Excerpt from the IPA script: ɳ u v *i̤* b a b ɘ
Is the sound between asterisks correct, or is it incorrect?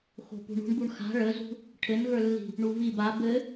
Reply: incorrect